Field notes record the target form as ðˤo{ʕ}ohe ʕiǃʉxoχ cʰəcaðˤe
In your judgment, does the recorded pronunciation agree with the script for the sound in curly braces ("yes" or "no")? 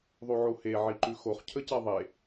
yes